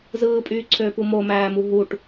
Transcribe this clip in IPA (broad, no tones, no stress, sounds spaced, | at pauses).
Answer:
z ɯː pʼ yː ǀʰ øː p u m o m æː m u ɦ u ʈ